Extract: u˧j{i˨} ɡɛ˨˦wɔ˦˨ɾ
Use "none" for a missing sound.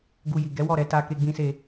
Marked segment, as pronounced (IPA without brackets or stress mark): i˨